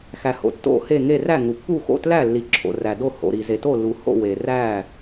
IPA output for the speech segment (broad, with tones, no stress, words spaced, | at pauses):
xæ˩ho̰˩ tːo̰˧˩he˧˩ŋe˧˩ ræ˧˩ŋu˩pːu˧˩xo̰˧˩ tlæ˧˩ lːi˩ǁʰo̰˩ ræ˩do˧˩ ho̰˩ɾi˩ze˩ to˧˩lːu˩ho̰˧˩ we˩ ræ˧˩